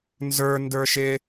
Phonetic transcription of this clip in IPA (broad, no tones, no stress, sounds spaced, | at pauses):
n z ə˞ n d ə˞ ʃ ɪ